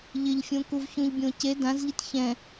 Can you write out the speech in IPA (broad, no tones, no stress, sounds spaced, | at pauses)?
ʎ ɪ ʎ fʲ õ k u v ç ũ ʎ bʲ õ c e d ã z ʎ i t ç ɛ̃